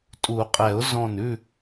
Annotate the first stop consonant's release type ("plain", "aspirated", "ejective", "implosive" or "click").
ejective